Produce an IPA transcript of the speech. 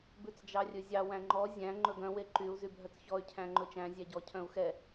b ʉ t͡s d͡ʒ ɑ rʲ ɵ zʲ ɑ w æ̃ ŋ͡ǃ ɔ zʲ æ̃ ŋ͡ǃ ɵ ɡ œ̃ w e ǃ y u̯ z y bʱ œ t͡s ç ɔ y̯ cʰ æ̃ ŋ͡ǃ ɵ t͡ʃ æ̃ zʲ æ ɟ ɔ cʰ œ̃ u̯ x ɛ

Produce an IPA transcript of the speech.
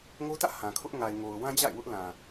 ŋ o˦ t ä̰˦˨ h ã˨ kʰ ʊ˦ ʔ ŋ a˨ ɪ̯ ŋ o˨ ʊ̯ w ã˦ d͡ʑ a̰˦˨ ɪ̯ w ʊ˦ ʔ l ã˨

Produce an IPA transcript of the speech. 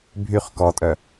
bʱ y χ k ɔ tʼ œ

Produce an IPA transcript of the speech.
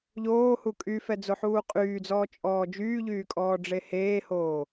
ʎ oː h u kʼ y f ɛ d͡z o ħ uː qʼ yː d͡z ɔː t͡ʃʼ ɔː d͡ʒ yː ʎ yː kʼ ɔː ɖ͡ʐ e h eː h oː

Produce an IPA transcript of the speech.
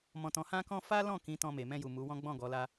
m ɔ̃˨ t ɔ̃˨ h ã˧ k ɔ̃˧ f a˦ l ɔ̃˦˨ k ĩ˨˦ t ɔ̃˧ m e˨ m ɛ̃˧ j u˨ m u˨˦ w ɔ̃˦ ɡ͡b ɔ̃˦˨ ɡ ɔ˨˦ l a˦

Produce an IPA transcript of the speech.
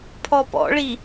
pʰ ɔ p ɔ̰ ɭ i

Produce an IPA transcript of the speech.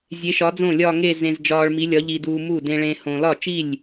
zʲ e˨˥ ʃ ɒ˨˥ d͡z õ˥˩ lʲ ɒ˥˧ ŋ e˥˧ z ẽ˧ z d͡ʒ ɒː˧ ɭ m i˨˥ lʲ ɒ˨˥ ʎ i˧ d uː˧ m u˥˩ d ẽ˧ ɭ ẽ˧ h õ˧ l ɒ˥˩ t͡ʃ i˥˩ lʲ

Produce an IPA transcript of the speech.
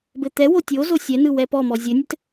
b ɘ t̪ ɛ w o tʲ o z o sʲ ɛ n ɯ w ɛ p ɔ m ɔ zʲ ɘ nʲ ɘ t

